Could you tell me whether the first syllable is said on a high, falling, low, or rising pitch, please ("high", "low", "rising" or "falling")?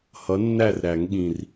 rising